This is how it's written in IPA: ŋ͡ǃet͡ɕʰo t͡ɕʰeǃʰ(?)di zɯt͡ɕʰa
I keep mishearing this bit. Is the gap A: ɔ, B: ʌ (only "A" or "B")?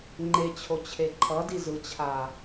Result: B